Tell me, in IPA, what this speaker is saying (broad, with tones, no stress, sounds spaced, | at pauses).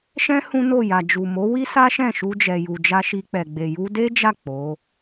ʃ ɛ̃˦ h ũ˦ n o˦˨ j a˨ d͡ʒ u˨ m o˨˦ w i˦ s a˦ ʃ ɛ̃˦˨ ʃ u˧ d͡ʒ ɛ˨ j u˨ d͡ʒ a˧ ʃ i˧ k͡p ɛ˨ ɡ͡b e˨ j u˧ d e˦ d͡ʒ a˦˨ k͡p o˨˦